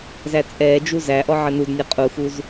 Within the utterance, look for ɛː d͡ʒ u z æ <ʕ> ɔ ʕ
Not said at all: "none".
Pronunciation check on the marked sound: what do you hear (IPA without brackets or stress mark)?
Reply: ʔ